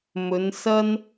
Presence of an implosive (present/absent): absent